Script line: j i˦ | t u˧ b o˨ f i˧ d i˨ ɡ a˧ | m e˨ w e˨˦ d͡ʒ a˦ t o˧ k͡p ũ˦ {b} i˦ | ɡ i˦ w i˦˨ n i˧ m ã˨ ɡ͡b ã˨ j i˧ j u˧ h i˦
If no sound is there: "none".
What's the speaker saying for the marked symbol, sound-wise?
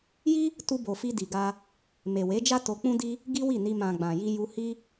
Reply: d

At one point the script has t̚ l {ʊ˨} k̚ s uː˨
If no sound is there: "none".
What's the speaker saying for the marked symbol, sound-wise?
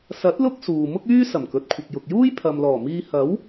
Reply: ʊ˥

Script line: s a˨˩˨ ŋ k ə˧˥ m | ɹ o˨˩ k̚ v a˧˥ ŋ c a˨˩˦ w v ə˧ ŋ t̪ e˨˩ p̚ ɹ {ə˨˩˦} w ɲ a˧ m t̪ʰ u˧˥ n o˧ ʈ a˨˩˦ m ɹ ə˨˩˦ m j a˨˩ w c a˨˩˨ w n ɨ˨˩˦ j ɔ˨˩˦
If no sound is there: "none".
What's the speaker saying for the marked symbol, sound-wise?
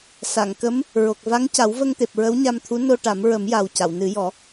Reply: ə˧˥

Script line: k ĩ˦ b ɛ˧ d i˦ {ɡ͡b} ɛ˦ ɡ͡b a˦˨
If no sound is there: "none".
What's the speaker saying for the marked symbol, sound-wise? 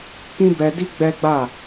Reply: ɡ͡b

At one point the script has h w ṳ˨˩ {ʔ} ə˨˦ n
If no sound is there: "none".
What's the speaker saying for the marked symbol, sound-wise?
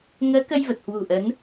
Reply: ʔ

